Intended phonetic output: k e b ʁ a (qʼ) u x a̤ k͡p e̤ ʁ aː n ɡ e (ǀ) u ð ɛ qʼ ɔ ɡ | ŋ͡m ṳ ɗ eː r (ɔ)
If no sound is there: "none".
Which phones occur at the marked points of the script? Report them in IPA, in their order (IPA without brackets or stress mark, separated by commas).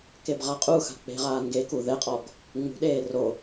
qʼ, k, o